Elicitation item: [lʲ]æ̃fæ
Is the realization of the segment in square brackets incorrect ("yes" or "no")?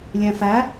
no